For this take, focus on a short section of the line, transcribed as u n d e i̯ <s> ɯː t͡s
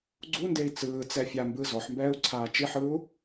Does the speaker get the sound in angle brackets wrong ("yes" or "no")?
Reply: yes